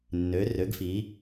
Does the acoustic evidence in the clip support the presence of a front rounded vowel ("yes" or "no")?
yes